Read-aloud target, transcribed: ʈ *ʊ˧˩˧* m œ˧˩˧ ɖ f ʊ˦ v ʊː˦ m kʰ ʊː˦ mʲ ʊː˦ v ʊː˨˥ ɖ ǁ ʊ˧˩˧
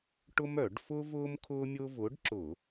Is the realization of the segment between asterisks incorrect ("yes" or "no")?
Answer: yes